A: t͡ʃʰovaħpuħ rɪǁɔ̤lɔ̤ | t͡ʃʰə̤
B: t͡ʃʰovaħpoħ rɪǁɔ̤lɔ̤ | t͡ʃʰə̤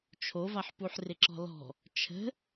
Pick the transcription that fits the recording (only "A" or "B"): A